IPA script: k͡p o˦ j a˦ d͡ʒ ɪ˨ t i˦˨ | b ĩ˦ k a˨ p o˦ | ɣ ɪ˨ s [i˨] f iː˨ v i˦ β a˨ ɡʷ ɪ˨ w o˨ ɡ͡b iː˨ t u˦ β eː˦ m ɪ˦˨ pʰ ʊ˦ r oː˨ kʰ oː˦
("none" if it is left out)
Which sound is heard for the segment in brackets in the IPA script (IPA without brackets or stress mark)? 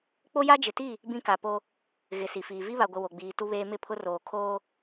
i˨